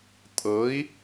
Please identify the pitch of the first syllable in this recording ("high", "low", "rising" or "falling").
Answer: rising